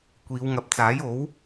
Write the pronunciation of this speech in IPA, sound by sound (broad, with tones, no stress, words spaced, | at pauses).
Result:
kʷiː˨˧wŋɐ˨p̚ t͡saː˨˥jo˨˥w